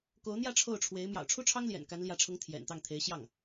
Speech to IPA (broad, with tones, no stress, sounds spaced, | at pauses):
k o˧˥ ʊ̯ n̪ j ä˥˧ ʈ͡ʂʰ o˥˩ ʊ̯ ʈ͡ʂʰ w e˧˥ ɪ̯ m j ɑ̰˨˩ ʊ̯ ʈ͡ʂʰ u˥ ʈ͡ʂʰ ɑ˥ ŋ l j ɛ̰˨˩ n k a˧˥ n l j ä˧˥ ʈ͡ʂʰ ʊ˧˥ ŋ t̪ʰ j ɛ̰˨˩ n t̪ ɑ˥˩ ŋ t̪ʰ e˧˥ ɪ̯ ɕ j ɑ˥˩ ŋ